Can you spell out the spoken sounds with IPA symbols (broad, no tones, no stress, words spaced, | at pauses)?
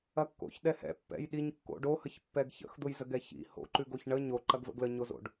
ɐkːo̰çɗɛhɛ̰ pːɛ̰jɗiɲ kːo̰ɖohəç pːɛɡçə̰x d̪ʊjzəɡɛçḭ ho̰ǃʉɡoç ɳə ɲoǃɐɡvə̰ ɡləɲozo̰ɖ